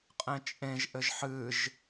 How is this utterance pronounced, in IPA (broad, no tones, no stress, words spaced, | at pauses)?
qʼẽt͡ʃʼẽʒʔɘʒ ħɨʒ